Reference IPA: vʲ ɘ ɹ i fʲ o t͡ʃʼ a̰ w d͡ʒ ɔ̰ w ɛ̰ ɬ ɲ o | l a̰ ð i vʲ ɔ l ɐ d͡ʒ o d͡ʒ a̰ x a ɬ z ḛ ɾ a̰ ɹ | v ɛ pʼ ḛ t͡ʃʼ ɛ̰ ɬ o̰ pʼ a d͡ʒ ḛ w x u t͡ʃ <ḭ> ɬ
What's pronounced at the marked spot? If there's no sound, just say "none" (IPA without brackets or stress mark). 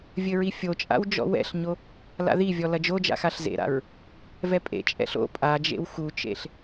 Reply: ḛ